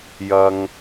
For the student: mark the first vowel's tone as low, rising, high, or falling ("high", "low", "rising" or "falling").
high